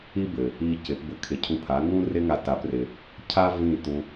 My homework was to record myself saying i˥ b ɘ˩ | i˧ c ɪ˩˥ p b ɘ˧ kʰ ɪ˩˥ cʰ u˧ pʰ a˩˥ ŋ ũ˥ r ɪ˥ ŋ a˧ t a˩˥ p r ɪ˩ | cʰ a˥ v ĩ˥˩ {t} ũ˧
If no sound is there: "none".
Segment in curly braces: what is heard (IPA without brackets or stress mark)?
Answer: t